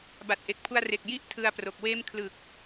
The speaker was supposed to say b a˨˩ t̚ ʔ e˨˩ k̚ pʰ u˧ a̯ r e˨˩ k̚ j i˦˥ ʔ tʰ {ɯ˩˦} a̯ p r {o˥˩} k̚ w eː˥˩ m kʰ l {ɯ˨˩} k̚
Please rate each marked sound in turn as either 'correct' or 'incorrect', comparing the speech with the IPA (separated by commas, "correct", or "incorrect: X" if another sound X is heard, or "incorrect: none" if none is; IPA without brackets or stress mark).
incorrect: ɯ˧, incorrect: o˨˩, correct